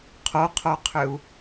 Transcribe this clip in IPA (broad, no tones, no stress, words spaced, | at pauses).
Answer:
qʰoqʰoqʰʏu̯